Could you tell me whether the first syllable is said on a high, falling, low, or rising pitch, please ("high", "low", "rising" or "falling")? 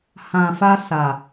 low